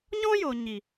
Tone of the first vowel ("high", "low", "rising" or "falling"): high